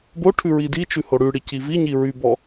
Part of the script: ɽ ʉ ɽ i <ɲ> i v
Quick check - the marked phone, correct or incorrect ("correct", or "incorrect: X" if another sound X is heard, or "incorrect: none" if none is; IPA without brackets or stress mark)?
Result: incorrect: c